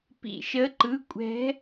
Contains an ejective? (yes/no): yes